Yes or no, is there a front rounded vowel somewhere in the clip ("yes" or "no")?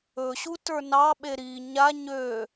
yes